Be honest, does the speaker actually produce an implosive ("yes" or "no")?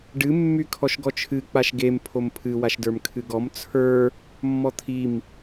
no